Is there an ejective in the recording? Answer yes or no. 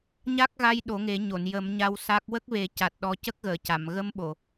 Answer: no